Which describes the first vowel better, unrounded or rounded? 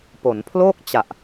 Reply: rounded